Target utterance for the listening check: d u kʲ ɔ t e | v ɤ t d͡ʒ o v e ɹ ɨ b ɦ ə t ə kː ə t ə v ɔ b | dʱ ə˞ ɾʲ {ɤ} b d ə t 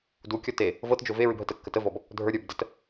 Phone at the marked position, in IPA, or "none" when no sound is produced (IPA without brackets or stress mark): ə˞